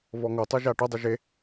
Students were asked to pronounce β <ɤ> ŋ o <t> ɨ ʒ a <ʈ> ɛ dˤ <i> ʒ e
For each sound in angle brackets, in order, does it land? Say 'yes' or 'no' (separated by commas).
no, no, yes, no